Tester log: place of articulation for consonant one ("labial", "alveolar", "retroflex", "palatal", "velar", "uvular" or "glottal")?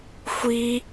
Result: velar